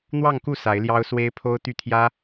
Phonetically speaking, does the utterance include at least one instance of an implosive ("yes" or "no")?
no